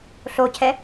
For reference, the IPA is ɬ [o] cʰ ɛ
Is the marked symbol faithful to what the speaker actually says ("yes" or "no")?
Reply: yes